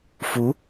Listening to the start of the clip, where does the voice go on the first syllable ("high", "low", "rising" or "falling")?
rising